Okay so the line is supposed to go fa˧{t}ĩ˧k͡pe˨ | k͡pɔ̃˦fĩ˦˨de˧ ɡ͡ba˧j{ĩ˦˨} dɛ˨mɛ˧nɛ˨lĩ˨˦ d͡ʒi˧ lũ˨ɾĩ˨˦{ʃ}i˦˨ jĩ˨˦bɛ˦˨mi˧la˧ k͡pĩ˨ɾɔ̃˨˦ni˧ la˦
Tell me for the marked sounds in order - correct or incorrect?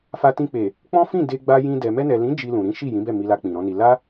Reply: correct, incorrect, correct

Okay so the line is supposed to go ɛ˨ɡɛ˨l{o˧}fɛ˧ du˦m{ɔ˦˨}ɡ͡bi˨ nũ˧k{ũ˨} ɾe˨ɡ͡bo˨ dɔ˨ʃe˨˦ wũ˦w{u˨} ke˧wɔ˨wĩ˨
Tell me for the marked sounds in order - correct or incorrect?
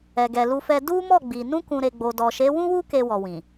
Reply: incorrect, correct, correct, incorrect

